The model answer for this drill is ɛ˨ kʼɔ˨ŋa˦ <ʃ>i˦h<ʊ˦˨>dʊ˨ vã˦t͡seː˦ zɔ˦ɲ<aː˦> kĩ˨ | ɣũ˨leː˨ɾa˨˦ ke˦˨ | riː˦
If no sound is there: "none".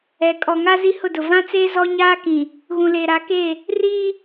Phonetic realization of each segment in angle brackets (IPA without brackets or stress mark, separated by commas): z, ʊ˦˨, aː˦